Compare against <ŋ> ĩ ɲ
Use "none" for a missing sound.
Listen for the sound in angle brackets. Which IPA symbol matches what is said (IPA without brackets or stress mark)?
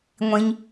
ŋʷ